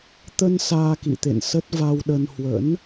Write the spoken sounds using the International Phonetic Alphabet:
t̪ ə˧ n s aː˧ k ḭ˧˨ t̪ ḛ˧˨ n s ə˦˥ t̚ v a˧ w ɗ ə˧ n h w ə̰˧˥ n

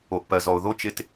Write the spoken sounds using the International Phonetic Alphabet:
o˨ ʔ p ɜ˨ z ɔ˨ ʊ̯ ð o˦ t͡ʃ ɪ˨ t

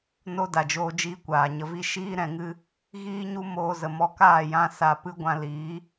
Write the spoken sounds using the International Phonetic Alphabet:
n o˦ d a˨ d͡ʒ oː˧ d͡ʒ iː˧ kʷ aː˨ ɲ ə˨ v i˧ ʃ iː˦ ɾ ɛ̃˧ ŋ ɨ˦ | ɣ iː˦ ɲ u˦ m oː˧ z ə˨ m ɔ˧ k aː˦˨ j ã˧ s a˧ p ɨ˦ ɡʷ ã˧ l iː˨˦

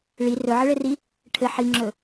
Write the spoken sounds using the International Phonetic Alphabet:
ɭ i r ɵ ʕ ɘ ɭ ɘ r i | ʈʰ ɘ ħ i ŋ͡ǁ ɵ

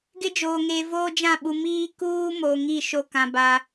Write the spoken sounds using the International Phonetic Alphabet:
ɡ ɪ˦ d͡ʒ oː˨ ŋ e˨ v oː˦ d͡ʒ ã˦˨ ɓ u˨ m iː˦ k uː˦ m o˨ ŋ i˦˨ ʃ o˦ k ã˨ b a˨

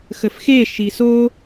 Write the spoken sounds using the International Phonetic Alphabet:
x ə f x e ʃ i s o

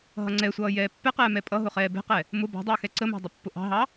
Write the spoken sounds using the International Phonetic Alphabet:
ɦ ʌ ŋ͡ǀ ɛ sʷ ʌː j ɛː pː ɛ q ɛː m ɛ pʼ ʌ ɦ ʊ χ ɛː b ɛ̤ q ɛ | m ʊ b ɑ̤ dˤ əː x ɛ ǀ ə m ɑ̤ dˤ ɪ pː ʊ ʔ ɑ̤ ɦ ɑ

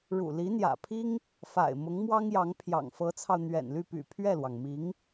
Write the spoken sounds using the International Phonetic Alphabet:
ɻ ṵ˨˩ l i˧˥ n̪ j ä̰˨˩ pʰ i˥ ŋ | f a̰˨˩ ɪ̯ m ʊ˧˥ ŋ m w ɑ˥ ŋ j ɑ˧˥ ŋ pʰ j ɑ̰˨˩ ŋ f ɤ˧˥ t͡sʰ ɑ˧ ʊ̯ n̪ ɥ ɛ̰˨˩ n l y˥˩ p y̰˨˩ pʰ ɥ ɛ˥˩ l w ɑ˩ ŋ m i˧˥ ŋ

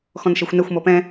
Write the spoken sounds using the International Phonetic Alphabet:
x ɔ̃ n ʃ e xʷ n ɛ xʷ m ɔ p ɛ̃

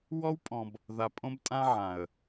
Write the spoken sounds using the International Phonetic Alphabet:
w ɔ˦ w pʼ ɔ̃˨ b | ð a˨ pʼ õ˦ b tʼ ã˦ ʕ ã˨ ə̯

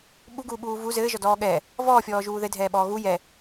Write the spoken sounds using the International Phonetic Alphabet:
ɓ u ɡ uː ɓ uː v u z ɘː ʒ ɔ d ɔː ɠ ɛ | v ɔː fʲ ɔː ʒ uː ð ɘ dʱ ɛː ɓ ɔː ɣ u j ɛ

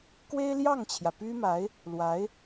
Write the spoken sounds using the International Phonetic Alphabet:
k w e˥ ɪ̯ l j ɑ˥˩ ŋ t͡ɕʰ j ä˩ p y˥ m a˧˥ ɪ̯ | l w a˧˥ ɪ̯

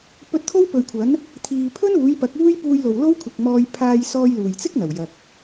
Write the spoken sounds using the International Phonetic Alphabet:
p ɵ˧ t̚ t̪ʰ o˥ w p ɵ˨ ɥ kʷʰ ɐ˨˥ n | t̪ʰ iː˨ pʰ ɵ˥ n uː˨˥ j p ɐ˨˥ k̚ uː˥ j p uː˧ j l o˨ w l o˥ w kʷʰ ɪ˨ k̚ m ɔː˧ j pʰ aː˧ j s ɔː˧ j l uː˨˩ j t͡s ɪ˥ k̚ n̪ ɐ˨˩ w j ɐ˨ k̚

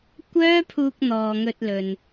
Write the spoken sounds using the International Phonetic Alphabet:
kʷ œː˥ pʰ uː˧ k̚ n̪ ɔː˨ ŋ ɵ˧ t̚ l ɵ˨ n

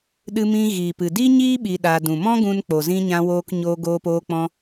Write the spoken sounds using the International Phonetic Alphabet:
ɗ ɨ˧ m ĩ˧ ɣ iː˨ p ɨ˨ d i˦ ɲ iː˦ ɓ i˧ ɗ a˧ d ũ˨ m ɔ̃˦ ɡ ũ˧ n k͡p o˨ z ĩ˧ ɲ ã˧ w oː˧ k ɲ oː˧ ɡ oː˧ p oː˧ k͡p ɔ̃˧

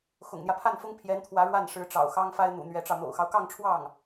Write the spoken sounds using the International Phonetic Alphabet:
x ʊ̰˨˩ ŋ n̪ j ä˦ pʰ a˥˩ n f ʊ˥ ŋ pʰ j ɛ˧˥ n t̪ʰ w ä˧˥ ɻ w a˥˩ n ʂ ɻ̩˧˥ ʈ͡ʂ ɑ̰˨˩ ʊ̯ x ɑ˥ ŋ f a˥ ɪ̯ n̪ ṵ˨˩ n̪ ɥ ɛ˧˥ ʈ͡ʂ ɑ˧ ʊ̯ n̪ o̰˨˩ ʊ̯ x ɑ˦ ʊ̯ k ɑ˥˧ ŋ ʈ͡ʂʰ w ɑ˥˩ ŋ

